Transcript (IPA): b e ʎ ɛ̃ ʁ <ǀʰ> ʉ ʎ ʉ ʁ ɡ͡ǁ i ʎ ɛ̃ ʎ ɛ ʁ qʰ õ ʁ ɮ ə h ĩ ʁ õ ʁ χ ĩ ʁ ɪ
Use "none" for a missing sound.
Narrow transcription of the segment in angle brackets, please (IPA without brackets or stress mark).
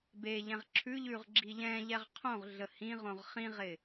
ǁʰ